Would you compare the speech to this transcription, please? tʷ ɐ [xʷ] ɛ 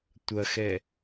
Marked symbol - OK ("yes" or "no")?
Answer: no